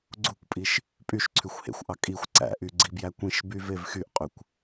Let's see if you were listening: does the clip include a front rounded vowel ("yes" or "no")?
yes